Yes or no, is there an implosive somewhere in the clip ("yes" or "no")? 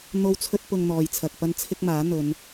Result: no